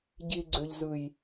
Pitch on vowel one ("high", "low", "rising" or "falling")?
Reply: low